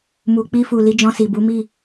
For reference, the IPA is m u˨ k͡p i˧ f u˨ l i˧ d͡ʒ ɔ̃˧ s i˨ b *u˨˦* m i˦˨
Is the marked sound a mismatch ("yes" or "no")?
no